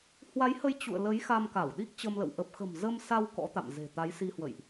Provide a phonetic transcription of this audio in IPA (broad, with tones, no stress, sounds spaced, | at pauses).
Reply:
h w a˨˦ j h ə˨˦ j t͡ɕ ṵ˧˨ ə̯ l ə˨˦ j x a˧ m k a˧˩ w ɗ i˦˥ k̚ t͡ɕ ə˧ m l ə̰˧˨ w ʔ ə˨˩ p̚ x ə̤˨˩ m z ə˧ m s a˧ w k ɔ̰˧˥ t̪ a̰˧˨ m z e̤˨˩ t̪ a˨˦ j s i˧ h w ə̰˧˨ j ʔ